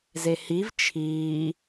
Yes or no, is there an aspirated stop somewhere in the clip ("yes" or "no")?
yes